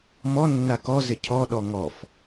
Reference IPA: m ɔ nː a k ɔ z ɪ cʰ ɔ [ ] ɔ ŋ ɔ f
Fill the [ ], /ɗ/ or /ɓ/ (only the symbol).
ɗ